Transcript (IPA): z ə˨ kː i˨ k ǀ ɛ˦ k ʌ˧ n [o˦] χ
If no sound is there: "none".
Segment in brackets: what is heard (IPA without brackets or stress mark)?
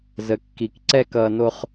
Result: o˦